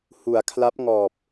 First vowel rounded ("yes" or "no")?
yes